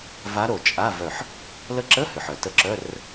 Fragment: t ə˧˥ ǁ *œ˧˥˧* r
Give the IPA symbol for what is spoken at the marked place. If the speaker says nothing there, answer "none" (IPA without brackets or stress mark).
œ˧˥˧